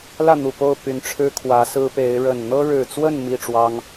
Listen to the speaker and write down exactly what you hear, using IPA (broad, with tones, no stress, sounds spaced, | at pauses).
l ä˥˨ n̪ u˨˩ p o˥˨ ʊ̯ p y˨˩ n ʈ͡ʂʰ ɻ̩˦ kʰ w ä˨˦ s ɹ̩˦ p e˨˦ ɪ̯ ɻ ə˨˩ n n̪ ɤ˦ ɻ ɻ̩˨˩ t͡s w ə˥˨ n m i˥˨ ʈ͡ʂ w ɑ˦ ŋ